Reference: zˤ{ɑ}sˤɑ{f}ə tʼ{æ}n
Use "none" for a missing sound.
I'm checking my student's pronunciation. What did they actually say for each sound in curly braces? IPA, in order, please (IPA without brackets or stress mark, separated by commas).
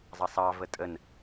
ɑ, v, ə